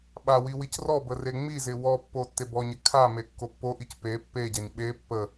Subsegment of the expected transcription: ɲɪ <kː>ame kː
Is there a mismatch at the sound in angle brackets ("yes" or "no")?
yes